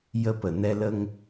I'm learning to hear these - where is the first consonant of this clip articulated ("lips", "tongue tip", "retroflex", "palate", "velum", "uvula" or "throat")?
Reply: palate